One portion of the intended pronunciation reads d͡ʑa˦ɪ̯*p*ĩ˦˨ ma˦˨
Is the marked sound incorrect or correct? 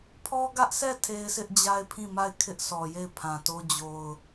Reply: incorrect